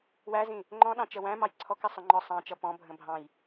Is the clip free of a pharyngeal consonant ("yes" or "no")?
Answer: yes